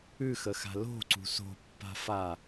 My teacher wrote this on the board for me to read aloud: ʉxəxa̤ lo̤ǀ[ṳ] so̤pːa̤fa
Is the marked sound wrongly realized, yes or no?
no